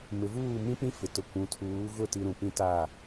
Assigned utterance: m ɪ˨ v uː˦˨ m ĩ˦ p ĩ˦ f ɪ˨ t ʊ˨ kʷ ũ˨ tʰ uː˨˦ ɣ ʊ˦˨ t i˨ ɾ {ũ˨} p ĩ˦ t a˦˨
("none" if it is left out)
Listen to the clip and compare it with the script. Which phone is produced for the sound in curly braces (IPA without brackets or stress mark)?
ũ˨